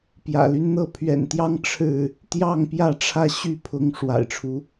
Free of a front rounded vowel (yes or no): no